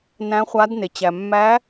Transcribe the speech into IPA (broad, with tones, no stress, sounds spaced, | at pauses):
n æ̃˧˥ χʷ a˧˥ d n e˩ t͡ɕ æ˩ mː æ˧˥